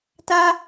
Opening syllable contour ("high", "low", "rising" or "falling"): high